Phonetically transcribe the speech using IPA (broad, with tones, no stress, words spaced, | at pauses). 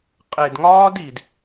qʼe˨dŋɒː˦di˨d